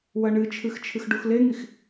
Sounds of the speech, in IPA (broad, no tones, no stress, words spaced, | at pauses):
wɐɳɨt͡ʃʰɨx t͡ʃʰɨxɖuxleŋix